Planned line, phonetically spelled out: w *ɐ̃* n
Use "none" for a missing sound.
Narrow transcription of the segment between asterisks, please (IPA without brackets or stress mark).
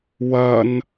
ɐ